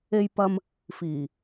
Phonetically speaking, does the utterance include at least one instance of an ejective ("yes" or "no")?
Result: no